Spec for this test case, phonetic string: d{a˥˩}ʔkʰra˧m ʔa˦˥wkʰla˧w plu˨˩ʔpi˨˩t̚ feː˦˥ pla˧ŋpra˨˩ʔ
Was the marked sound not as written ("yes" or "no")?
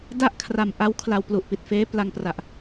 no